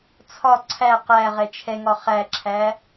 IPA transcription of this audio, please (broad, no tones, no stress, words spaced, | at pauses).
t͡sʰɒ ǀʰæ qæ ʁɛt͡ʃʰɛŋɒ χæǁʰæ